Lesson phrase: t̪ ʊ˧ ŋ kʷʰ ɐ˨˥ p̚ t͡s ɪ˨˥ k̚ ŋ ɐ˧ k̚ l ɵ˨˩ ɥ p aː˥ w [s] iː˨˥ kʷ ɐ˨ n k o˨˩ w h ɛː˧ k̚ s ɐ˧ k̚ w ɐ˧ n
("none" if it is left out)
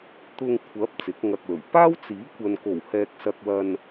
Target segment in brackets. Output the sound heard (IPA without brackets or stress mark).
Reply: t͡s